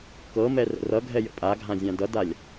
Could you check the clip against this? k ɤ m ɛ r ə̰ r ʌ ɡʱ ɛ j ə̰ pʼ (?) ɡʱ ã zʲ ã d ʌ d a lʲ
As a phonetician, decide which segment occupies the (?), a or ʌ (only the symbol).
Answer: a